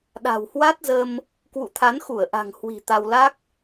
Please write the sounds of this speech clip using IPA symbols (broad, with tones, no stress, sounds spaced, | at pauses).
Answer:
ɗ a̤˨˩ w h w a˦˥ t̚ z ə˧ m | k w ṵ˧˨ t̪ʰ a˨˦ n x u˧˩ ə̯ ʔ a̤˨˩ ŋ h w i̤˨˩ t̪ a˧ w l a˦˥ k̚